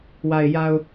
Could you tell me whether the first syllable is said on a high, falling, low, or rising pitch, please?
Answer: low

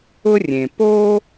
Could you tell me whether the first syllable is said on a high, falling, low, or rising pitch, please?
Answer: high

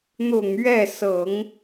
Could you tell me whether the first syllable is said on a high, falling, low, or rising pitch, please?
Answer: low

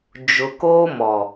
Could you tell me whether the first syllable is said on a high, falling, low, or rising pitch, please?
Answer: low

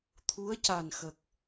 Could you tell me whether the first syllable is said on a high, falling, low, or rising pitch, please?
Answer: rising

